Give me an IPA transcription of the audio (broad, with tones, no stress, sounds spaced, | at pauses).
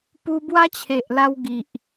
p u˧ b w a˦ t͡ɕʰ e˨ ʔ l a˧ w ɡ i˨ ʔ